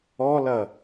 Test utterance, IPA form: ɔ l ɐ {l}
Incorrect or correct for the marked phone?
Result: incorrect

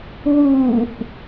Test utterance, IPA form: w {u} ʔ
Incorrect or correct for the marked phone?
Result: correct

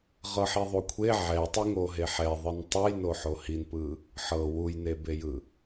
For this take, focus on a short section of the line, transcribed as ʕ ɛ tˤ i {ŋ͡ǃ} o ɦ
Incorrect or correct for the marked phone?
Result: incorrect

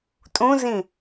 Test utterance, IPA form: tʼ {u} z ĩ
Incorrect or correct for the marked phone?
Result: incorrect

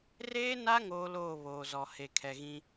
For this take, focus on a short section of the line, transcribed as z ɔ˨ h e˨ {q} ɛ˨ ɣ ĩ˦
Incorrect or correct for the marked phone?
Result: incorrect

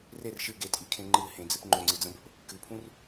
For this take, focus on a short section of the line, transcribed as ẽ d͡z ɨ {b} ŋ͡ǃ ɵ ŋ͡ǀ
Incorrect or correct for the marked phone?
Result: incorrect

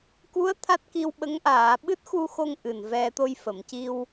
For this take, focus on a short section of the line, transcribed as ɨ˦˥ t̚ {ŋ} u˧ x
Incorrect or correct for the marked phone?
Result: incorrect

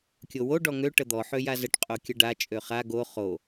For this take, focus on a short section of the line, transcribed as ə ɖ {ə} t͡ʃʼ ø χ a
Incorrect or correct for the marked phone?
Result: incorrect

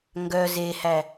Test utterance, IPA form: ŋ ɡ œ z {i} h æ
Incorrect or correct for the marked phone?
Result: incorrect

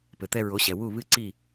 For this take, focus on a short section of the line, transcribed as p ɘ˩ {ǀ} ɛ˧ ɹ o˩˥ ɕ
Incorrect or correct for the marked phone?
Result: incorrect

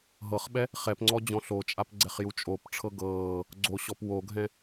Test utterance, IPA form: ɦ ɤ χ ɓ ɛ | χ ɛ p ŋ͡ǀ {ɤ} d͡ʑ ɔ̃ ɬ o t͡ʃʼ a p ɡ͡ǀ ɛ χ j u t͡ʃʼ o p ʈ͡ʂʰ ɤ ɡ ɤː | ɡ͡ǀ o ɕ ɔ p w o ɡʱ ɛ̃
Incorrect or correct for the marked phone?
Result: incorrect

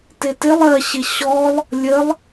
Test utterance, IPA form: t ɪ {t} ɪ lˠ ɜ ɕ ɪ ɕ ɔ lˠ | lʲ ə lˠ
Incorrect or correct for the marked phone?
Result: correct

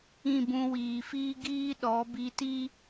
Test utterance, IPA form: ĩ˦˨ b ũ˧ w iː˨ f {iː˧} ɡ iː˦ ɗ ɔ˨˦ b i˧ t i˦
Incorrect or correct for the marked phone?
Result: incorrect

